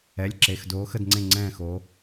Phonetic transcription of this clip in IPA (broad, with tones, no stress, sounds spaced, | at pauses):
ɛ˩˧˩ lʲ ǁ e˩˧˩ x d oː˨˦ x ə˦˨ d ŋ͡ǀ ẽ˦˨ ŋ͡ǀ ɛ̃ː˦˨ x o˨˦